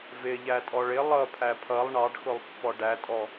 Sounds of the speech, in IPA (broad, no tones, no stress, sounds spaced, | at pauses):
v ɪ ʎ æ tʼ ɔ ɭ ɪ lˠ ʌ pʰ æ pʰ ʌ lˠ ɳ ɑ ɖ x ʊ lˠ pː ɔ ɖ æ tʼ ɔ